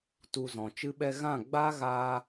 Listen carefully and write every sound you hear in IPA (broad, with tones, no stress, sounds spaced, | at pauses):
t u˧ z ɔ̃˨ t͡ʃ ɨ˦ ɓ ɛ˧ ɣ ã˦˨ ɡ͡b a˦ ɣ a˧